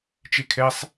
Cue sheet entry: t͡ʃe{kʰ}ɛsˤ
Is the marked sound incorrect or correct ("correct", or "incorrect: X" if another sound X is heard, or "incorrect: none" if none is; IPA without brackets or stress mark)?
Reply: correct